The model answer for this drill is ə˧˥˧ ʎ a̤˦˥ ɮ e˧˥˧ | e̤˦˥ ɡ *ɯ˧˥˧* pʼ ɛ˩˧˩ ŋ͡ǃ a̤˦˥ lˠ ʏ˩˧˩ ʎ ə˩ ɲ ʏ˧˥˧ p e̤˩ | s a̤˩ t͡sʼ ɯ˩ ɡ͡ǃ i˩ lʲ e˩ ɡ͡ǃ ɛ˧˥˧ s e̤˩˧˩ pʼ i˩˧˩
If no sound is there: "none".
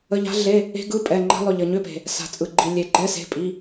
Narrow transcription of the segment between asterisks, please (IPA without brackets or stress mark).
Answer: ɯ˧˥˧